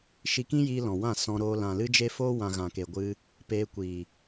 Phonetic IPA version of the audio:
ʃ i˧ k ĩ˦ j iː˧ l ɔ̃˨ w ã˦˨ s ɔ̃˧ ɾ oː˧ l ã˨ l ɨ˦ d͡ʒ e˦ f oː˦ w ã˨ ɣ ã˨ k e˨ ɡʷ ɨ˧ | p eː˧ kʷ iː˨

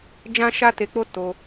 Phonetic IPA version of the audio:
d͡ʒ ã˦ ʃ a˦ t e˧ k͡p o˦ t o˧

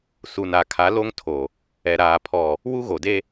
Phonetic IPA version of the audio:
s u˨ n a˨ kʰ a˨˦ l o˦ ŋ tʰ o˨ | ɛ˨ ɾ aː˨ pʰ ɔ˨ | w u˦ ɣ o˨ d e˦

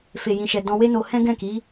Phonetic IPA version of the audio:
f e˨ j ĩ˨ ʃ ɛ˨ d ɔ̃˧ w e˦ n o˧ h ɛ̃˦ ɡ ɛ̃˦˨ k i˨˦

